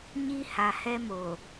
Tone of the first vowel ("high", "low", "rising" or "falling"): high